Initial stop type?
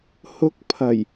plain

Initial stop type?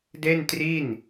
plain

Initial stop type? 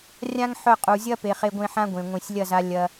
ejective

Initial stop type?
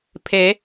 aspirated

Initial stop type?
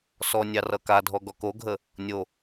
plain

